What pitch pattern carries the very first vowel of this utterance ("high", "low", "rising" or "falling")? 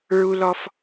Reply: high